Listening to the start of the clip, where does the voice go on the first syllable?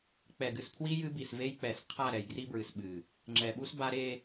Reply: low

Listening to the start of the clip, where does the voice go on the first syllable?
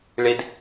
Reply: low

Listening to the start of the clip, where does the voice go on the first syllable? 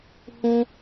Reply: high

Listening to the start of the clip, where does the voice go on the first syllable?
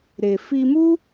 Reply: low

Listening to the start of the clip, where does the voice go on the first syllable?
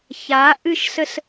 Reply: rising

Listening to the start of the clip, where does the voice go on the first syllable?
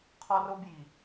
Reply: high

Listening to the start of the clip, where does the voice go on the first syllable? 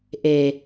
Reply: low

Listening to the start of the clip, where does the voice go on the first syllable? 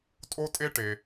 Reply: high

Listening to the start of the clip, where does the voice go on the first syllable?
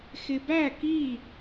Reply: low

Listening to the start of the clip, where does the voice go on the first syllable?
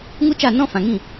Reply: high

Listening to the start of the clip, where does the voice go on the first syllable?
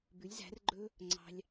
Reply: rising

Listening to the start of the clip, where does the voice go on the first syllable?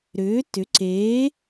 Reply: rising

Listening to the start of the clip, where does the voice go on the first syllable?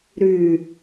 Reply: low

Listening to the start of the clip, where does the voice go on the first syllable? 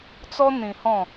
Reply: high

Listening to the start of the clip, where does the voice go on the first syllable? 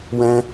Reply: high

